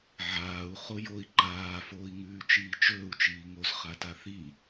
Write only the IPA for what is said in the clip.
ʕ aː u̯ χ o j o i̯ ǃ aː f oː i̯ ŋ ʉː t͡ʃ iː t͡ʃ ɵː u̯ t͡ʃ iː ŋ o z χ a t a θ i

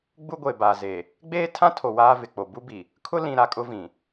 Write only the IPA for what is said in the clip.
ɡ͡b u˦ ɡʷ e˨ b a˨ z e˨ | ɡ͡b eː˦ tʰ ã˦ tʰ o˨ w aː˦ v ɪ˨ k͡p o˨ b u˦ b i˨ | kʰ ʊ˦ l ĩ˨ ɾ a˨ kʼ ʊ˦ v ĩ˨

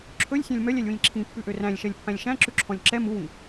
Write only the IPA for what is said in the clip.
ǁʰ ɵ lʲ sʲ æ̃ lʲ m œ lʲ æ lʲ w ĩ lʲ ǁʰ ĩ pː ʉ ʔ ø r æ̃ lʲ ʃ ɛ lʲ pː æ̃ lʲ ʃ æ̃ ǁ ʉ ǁʰ ɔ̃ lʲ ǁ ɛ m u w ĩ

